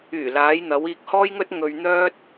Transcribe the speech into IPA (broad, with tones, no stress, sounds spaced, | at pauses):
yː˨˩ l aː˨˧ j n̪ ɐ˨˧ w iː˧ k̚ h ɔː˥ j ŋ ɵ˥ t̚ ŋ ɵ˧ ɥ n̪ œː˥ t̚